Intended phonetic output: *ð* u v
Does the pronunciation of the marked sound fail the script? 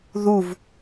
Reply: no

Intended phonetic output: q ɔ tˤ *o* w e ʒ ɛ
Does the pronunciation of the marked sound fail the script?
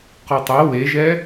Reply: no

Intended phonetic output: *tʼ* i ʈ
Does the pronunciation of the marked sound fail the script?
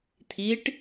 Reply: yes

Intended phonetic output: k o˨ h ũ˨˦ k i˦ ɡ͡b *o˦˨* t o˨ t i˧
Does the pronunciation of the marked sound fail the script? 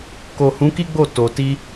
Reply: no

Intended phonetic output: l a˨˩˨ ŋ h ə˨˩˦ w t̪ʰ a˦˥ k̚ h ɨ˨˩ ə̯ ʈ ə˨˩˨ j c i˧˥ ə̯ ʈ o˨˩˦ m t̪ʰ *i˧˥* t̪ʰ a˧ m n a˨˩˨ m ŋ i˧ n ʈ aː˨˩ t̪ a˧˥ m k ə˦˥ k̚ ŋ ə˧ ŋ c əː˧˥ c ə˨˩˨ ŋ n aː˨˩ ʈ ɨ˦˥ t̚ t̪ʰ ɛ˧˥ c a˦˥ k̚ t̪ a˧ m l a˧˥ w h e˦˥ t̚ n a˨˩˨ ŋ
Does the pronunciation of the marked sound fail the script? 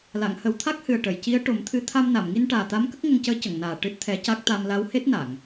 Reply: yes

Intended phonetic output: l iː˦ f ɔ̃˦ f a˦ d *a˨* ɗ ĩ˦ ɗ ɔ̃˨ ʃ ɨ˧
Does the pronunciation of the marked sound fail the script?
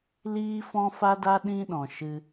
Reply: yes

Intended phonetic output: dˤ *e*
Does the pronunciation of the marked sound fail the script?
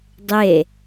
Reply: no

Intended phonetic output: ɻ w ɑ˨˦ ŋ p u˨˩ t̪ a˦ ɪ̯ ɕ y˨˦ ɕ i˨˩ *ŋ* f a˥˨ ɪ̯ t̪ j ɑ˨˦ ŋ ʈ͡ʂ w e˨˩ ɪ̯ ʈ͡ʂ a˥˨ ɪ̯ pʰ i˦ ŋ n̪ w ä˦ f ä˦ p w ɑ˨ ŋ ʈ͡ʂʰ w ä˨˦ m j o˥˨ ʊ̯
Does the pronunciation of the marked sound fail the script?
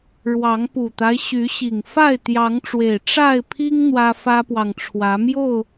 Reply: no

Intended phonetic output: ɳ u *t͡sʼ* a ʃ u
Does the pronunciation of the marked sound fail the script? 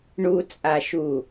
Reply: no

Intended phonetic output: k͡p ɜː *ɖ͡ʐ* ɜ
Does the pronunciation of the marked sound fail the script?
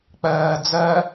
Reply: yes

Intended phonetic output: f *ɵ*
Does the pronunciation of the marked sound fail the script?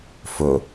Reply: no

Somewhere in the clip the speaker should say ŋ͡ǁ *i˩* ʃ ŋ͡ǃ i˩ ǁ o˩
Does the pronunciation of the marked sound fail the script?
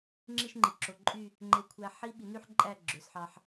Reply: yes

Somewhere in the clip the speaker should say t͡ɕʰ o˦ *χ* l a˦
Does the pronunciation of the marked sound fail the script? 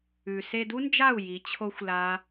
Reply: yes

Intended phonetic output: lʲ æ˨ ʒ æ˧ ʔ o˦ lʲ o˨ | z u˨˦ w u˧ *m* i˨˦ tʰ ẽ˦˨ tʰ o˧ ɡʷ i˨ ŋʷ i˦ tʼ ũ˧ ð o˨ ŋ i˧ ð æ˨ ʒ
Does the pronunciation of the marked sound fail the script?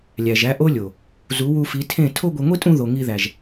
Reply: yes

